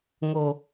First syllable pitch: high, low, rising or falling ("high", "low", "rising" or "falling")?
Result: low